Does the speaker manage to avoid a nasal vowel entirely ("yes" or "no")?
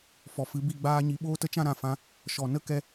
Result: no